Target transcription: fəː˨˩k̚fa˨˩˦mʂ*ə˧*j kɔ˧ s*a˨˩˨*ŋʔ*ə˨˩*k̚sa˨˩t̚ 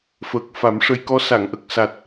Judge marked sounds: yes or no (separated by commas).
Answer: yes, yes, yes